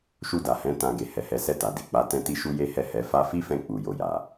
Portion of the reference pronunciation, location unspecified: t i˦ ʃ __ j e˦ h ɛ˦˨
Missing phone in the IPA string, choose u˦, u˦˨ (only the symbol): u˦